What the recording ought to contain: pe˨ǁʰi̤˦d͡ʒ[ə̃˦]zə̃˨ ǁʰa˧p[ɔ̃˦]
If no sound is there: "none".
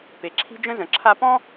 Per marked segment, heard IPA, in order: ə̃˦, ɔ̃˦

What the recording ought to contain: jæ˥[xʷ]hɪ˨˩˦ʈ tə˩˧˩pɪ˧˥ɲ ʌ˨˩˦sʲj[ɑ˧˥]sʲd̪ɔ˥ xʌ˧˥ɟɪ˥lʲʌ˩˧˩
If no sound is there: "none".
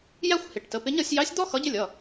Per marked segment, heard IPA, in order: xʷ, ɑ˧˥

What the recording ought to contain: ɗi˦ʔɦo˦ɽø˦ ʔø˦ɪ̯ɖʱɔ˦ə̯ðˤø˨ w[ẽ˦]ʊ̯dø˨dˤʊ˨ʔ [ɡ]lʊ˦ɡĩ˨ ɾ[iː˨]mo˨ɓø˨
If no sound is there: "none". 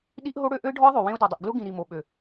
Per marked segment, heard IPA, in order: ẽ˦, ɡ, i˨

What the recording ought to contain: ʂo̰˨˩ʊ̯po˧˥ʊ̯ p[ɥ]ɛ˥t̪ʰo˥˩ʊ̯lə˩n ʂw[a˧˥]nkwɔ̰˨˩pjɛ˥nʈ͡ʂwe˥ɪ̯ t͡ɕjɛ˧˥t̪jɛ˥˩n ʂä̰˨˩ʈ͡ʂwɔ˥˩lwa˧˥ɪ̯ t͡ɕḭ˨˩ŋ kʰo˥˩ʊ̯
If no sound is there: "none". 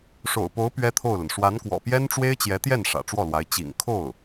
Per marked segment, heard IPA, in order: ɥ, a˧˥

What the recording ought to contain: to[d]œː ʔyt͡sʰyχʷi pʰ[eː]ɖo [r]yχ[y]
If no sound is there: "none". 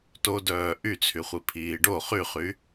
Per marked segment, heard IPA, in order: d, iː, χ, y

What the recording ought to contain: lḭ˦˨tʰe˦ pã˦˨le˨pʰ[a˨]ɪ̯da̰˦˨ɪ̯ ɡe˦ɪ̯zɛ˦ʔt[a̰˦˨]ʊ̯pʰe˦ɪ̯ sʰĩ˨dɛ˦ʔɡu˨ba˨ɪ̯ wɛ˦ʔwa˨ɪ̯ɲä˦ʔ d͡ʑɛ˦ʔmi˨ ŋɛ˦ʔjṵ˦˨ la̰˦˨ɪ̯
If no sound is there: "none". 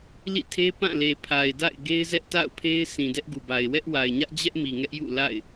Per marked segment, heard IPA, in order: a˨, a̰˦˨

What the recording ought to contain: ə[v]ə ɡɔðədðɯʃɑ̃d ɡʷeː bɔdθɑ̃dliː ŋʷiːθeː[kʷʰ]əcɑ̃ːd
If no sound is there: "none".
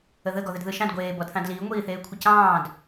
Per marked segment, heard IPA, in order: ð, kʷʰ

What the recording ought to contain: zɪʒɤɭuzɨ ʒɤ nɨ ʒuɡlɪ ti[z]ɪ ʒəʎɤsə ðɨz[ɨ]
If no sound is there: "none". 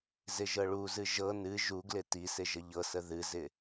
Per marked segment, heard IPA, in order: s, ɪ

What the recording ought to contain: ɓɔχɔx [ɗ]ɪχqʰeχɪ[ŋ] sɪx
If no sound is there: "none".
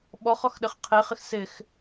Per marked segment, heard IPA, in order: ɗ, x

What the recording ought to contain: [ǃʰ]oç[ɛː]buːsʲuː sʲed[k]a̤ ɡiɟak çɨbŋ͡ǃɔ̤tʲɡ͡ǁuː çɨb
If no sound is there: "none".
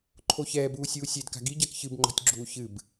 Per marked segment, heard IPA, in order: ǃʰ, ɛː, k

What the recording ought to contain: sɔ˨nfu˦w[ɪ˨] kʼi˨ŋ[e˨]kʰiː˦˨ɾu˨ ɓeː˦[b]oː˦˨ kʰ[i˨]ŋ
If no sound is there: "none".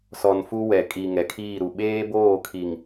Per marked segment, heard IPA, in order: ɛ˨, ɛ˨, b, i˨

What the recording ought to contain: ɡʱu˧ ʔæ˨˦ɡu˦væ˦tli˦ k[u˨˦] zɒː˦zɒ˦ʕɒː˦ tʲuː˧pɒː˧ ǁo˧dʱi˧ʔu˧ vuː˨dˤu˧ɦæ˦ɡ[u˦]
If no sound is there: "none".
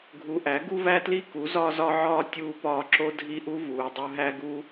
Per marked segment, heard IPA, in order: u˨˦, u˦

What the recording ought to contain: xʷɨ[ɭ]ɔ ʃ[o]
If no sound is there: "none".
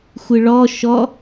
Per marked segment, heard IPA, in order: ɭ, ɔ

